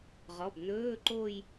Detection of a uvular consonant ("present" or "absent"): present